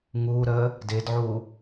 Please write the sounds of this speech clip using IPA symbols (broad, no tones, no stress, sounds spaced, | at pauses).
ŋ uː ɾ əː | d ɪː d ʕ uː